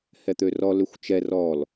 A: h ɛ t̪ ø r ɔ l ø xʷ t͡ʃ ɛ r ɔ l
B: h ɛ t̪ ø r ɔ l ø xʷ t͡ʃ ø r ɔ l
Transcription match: A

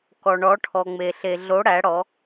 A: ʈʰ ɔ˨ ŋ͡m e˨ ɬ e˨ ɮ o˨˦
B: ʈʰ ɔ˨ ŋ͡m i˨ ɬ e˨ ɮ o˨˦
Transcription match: A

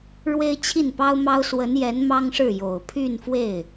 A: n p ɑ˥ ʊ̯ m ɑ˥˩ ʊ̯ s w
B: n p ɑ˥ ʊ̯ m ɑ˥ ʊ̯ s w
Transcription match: B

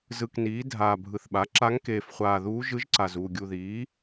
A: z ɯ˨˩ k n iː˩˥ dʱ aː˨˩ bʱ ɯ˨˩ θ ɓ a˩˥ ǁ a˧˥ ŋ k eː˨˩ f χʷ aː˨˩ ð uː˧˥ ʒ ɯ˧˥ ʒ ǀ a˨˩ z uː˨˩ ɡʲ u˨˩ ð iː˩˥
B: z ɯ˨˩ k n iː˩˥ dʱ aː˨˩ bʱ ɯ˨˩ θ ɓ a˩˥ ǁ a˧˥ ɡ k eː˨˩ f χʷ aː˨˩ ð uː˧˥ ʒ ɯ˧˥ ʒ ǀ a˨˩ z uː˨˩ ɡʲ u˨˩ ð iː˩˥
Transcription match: A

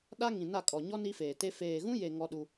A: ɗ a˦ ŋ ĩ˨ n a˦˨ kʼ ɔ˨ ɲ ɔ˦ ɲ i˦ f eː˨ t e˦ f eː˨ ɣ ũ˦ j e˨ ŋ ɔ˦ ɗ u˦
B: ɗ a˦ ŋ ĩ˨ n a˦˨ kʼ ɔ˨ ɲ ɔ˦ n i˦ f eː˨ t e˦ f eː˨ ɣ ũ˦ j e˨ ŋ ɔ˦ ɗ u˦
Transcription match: B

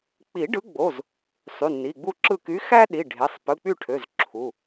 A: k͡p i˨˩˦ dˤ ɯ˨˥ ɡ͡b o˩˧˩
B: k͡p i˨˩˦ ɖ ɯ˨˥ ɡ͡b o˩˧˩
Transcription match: B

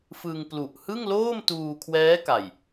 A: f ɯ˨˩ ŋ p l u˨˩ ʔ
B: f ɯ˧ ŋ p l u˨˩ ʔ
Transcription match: B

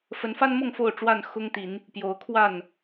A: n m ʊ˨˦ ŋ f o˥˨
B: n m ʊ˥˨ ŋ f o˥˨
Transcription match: B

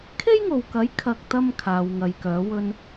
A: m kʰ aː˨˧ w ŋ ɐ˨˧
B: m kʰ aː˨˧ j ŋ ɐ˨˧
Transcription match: A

